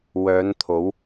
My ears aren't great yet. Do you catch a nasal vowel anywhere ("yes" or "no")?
no